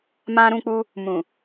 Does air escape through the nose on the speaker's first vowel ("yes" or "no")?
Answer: yes